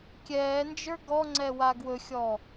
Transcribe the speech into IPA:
kʲɛːnd͡ʒə˞ ɡɔŋ͡ǀɛwa ɡwɵxʲɔ

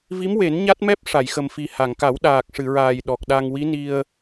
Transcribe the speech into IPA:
vi˧˥mwe˨˩˦n ɲa˦˥t̚mɛ˦˥p̚ ʂa˨˩˨jxə˨˩mfi˨˩ ha˨˩˨ŋka˨˩˦w ɗaː˨˩k̚ʂɨ˨˩˨ɹaː˨˩j ɗɔ˨˩k̚ɗa˧ŋ wi˧˥ni˧ə̯

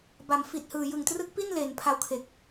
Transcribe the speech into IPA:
ba˩˦mfi˨˩t̚hɯː˨˩ jɯ˨˩ŋtrɯ˦˥k̚pi˥˩n le˨˩n pʰa˧wkʰe˨˩k̚

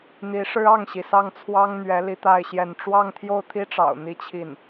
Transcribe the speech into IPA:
n̪i˧˥ʂɻ̩˥ɑ˥˩ŋɕi˩ sɑ˥˩ŋt͡sʰwɑ˥ŋn̪ɥɛ˧˥ li˥t̪a˥˧ɪ̯ɕjɛ˥˧n ʈ͡ʂwɑ˥˧ŋt̪ʰjo˥˩ʊ̯t̪ʰi˥ʈ͡ʂɑ̰˨˩ʊ̯ n̪i˥˧t͡ɕʰi˥˩n

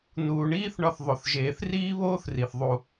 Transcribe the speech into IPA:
nuː˩ɳiː˥θ ɳɒ˧θðˤo˩θʒeː˩θ riː˥βoː˥θri˩θ ðˤu˩

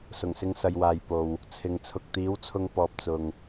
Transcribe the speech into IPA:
sʊ˨˩ŋsɪ˧ŋ sɐ˨jwaː˨j po˨w | t͡sʰɪ˨ŋ t͡sʰʊ˨k̚t̪iː˨˥wt͡sʰʊ˧ŋpɔː˨p̚ t͡sʊ˨ŋ

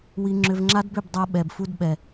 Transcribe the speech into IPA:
wi˧ŋ͡ǁʏ˧v ŋ͡ǁa˦dbʏ˦˨bdˤa˧ ɓɛ˨bfu˧d ɓɛ˨

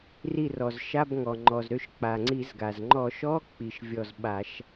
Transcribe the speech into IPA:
ri˧˩rɔ˩z ʃa˧˥˧bŋɔ˩ ŋ͡ǃɔ˩zɾø˧˩ʃ k͡pa˩ŋ͡ǀi˧˩˧zɡa˩z ŋ͡ǃɔ˧˩˧ʃɔ˧˥˧ k͡pi˩ʃ vʲɔ˧˩z ɓa˧˩˧ʃ

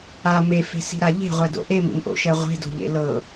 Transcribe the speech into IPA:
a mefe̤si̤ɾa ʎe̤ʁʷɛdo̰ ʔemḭmʔo̰ʃɛ ʁʷe̤do̤ʎḛ lɤ

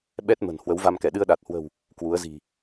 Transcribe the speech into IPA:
ɓɛ˦˥t̚ mə̤˨˩n hwə˨˦wva˧mkɛ˧˩ ɗɨ˧ə̯ɗa˨˩t̚hwə̤˨˩w | kwu˨˦ə̯zi̤˨˩

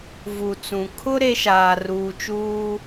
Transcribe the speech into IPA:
vu˨t͡sũ˨ kʰʊ˦ ɾe˦ ʃaː˨ ruː˨t͡ʃuː˦

